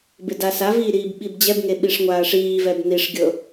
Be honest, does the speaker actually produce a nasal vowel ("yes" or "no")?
no